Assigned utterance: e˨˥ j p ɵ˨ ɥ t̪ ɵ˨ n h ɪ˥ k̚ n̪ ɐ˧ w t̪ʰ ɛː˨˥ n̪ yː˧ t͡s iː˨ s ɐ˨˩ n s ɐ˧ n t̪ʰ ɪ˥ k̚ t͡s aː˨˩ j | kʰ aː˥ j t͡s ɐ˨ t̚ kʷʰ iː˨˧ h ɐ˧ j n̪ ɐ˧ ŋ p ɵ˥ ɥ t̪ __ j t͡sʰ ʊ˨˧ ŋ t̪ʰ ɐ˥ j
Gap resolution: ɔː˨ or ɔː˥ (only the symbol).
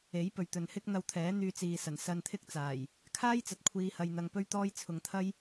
ɔː˥